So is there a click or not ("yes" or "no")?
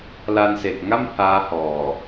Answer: no